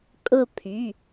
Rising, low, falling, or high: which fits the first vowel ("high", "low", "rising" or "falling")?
falling